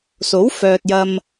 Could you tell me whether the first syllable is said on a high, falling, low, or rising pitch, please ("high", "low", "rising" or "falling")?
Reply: rising